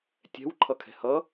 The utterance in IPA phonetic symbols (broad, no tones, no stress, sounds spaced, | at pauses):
tʲ ɛ̤ w ǃʰ ʌ kʰ ɛ̤ h ʌ